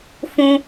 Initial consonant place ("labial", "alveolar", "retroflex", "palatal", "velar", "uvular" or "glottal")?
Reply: labial